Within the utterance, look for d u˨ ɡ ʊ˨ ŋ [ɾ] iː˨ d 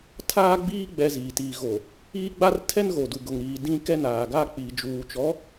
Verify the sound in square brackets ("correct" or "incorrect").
correct